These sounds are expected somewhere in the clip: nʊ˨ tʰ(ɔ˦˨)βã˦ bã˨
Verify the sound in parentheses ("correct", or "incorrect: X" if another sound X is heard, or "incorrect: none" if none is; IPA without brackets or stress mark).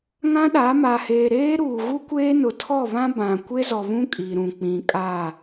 correct